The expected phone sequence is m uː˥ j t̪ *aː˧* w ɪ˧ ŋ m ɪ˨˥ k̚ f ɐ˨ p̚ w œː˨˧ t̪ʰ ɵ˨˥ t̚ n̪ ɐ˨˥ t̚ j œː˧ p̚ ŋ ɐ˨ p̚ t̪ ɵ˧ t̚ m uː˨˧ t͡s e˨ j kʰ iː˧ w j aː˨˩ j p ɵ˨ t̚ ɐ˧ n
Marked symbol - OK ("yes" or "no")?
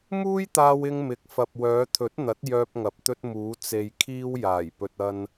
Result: yes